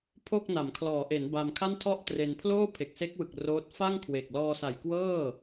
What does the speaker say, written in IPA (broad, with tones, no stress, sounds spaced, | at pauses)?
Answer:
pʰ o˥˩ k̚ n a˩˦ m kʰ l ɔː˩˦ ʔ e˩˦ n b a˧ m kʰ a˥˩ n tʰ ɔ˥˩ ʔ t r e˧ n pʰ l oː˥˩ pʰ e˨˩ k̚ s e˦˥ k̚ w ɯ˨˩ k̚ r oː˦˥ t̚ f a˥˩ ŋ kʰ w e˨˩ k̚ l ɔː˧ s a˨˩ j k w ɤː˥˩